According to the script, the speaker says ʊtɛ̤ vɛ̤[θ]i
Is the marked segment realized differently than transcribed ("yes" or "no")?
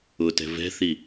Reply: no